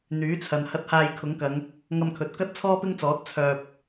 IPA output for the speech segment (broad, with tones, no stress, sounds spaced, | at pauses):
n̪ yː˨˥ t͡sʰ ɐ˨ n h ɐ˧ t̚ h aː˧ j kʰ ʊ˨˥ ŋ k ɐ˨˧ ŋ | ŋ ɐ˧ m kʰ ɵ˨ t̚ k ɐ˥ t̚ t͡sʰ ɔː˥ p ɪ˥ ŋ t͡s ɔː˨˥ t̚ t͡sʰ œː˨ p̚